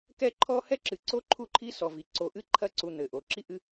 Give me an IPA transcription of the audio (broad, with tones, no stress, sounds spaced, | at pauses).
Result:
k ɛ˦ ǃʰ ɔ˦ h ɛ˥ ǁ ɨ˩ ǀ o˥ ǃʰ u˦ ǃʰ i˥ s ɔ˩ v i˩ ǀ o˩ ʔ ɨ˦ ǃʰ ɐ˦ ǀ u˨ n̪ ɘ˩ ʔ o˩ ǁ i˥ ʔ ɨ˦